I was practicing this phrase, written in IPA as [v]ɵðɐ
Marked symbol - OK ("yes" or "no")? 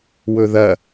no